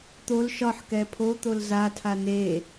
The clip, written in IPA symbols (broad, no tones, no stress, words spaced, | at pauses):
t̪ol ʃɒħkɛ pʰot̪ol zatʰa ne